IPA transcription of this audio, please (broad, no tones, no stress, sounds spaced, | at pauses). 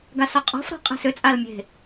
ɡ a s ɔ qʼ ɔ̤ f ɾ ɔ̤ qʼ e̤ s ʏ t͡sʼ a l mʲ e̤